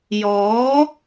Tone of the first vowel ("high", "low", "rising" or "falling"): rising